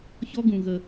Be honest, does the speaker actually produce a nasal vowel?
yes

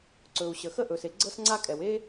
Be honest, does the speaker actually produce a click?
yes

